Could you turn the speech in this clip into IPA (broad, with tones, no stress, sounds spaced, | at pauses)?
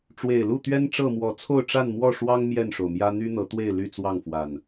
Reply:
ʈ͡ʂ w e˨˩ ɪ̯ l u˥˨ t̪ ɥ ɛ˦ n ʈ͡ʂ ɤ˥˨ m w ɔ˨˦ t͡sʰ o˥˨ ʊ̯ ʈ͡ʂ a˥˨ n m w ɔ˥˨ ʂ w ɑ˦ ŋ m j ɛ˥˨ n ʂ o˩ ʊ̯ m j ä˦ n̪ y˦ n̪ ɤ˨˦ t̪ w e˥˨ ɪ̯ l y˥˨ t͡s w ɑ˥˨ ŋ f w a˨˩ n